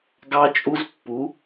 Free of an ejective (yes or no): no